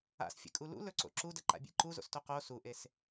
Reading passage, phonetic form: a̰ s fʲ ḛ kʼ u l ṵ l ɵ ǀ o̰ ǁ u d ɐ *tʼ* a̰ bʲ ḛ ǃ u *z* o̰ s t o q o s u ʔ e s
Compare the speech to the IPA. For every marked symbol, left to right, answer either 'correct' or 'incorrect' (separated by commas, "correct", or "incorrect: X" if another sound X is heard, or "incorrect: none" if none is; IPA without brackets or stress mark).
incorrect: ǃ, correct